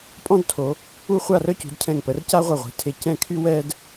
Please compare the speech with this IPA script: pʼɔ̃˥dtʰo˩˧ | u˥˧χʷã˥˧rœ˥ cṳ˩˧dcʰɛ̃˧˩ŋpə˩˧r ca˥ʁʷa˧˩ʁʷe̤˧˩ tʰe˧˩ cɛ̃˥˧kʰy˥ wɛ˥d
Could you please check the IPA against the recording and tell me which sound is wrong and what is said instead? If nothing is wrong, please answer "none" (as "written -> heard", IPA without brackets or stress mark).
ã˥˧ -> a˥˧